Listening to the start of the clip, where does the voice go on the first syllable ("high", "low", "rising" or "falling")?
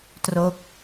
falling